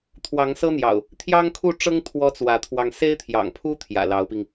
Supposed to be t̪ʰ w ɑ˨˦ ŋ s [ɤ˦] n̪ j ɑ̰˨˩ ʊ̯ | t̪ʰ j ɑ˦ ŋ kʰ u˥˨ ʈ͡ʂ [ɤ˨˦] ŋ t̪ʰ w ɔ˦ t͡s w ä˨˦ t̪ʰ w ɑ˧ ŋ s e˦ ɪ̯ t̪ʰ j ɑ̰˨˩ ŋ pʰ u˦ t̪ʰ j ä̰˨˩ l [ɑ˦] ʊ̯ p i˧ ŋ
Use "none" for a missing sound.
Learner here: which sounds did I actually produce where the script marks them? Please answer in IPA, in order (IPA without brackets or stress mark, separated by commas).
ɤ˦, ɤ˦, ɑ˨˦